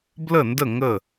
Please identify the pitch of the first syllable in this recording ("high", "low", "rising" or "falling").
falling